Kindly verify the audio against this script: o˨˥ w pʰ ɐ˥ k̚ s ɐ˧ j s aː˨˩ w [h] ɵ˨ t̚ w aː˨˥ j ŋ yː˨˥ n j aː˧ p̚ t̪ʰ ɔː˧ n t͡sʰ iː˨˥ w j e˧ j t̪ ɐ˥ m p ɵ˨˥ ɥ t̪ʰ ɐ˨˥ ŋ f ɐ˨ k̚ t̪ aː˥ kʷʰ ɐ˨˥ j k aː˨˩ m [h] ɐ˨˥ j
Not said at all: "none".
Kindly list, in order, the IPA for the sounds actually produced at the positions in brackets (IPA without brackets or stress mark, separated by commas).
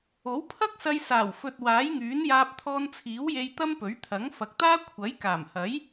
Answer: f, h